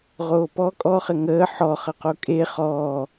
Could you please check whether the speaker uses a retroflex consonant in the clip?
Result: no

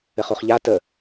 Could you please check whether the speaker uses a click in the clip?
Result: no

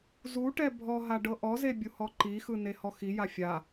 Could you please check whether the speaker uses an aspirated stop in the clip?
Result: no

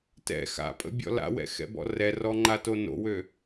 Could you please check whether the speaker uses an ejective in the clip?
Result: yes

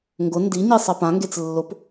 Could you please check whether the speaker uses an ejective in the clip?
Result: no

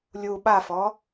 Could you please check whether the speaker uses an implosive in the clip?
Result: yes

